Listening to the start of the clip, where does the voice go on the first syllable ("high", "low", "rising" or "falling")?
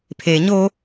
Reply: low